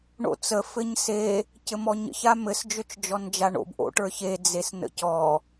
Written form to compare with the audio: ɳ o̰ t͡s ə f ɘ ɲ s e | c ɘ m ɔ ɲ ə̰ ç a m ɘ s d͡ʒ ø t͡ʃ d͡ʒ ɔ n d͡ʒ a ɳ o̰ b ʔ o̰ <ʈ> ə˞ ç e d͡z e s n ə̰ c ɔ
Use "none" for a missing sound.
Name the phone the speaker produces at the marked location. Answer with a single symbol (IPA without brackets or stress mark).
ʈ